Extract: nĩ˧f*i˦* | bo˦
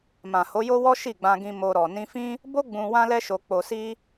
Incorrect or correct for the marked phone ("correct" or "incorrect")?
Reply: incorrect